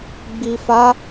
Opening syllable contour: low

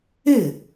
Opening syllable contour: falling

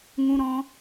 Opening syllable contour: high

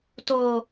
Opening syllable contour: low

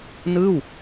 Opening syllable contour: falling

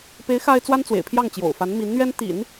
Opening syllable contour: rising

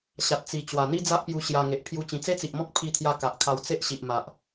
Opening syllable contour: low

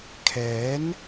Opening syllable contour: rising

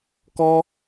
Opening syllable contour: high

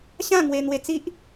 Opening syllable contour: falling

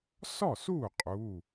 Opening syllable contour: falling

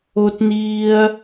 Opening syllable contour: high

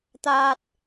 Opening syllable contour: high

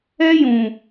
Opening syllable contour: high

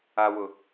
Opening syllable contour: high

